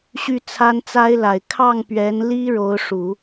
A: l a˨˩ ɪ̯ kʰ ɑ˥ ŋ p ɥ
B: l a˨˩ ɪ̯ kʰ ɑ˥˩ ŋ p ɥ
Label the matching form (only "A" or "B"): B